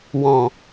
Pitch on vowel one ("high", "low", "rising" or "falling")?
low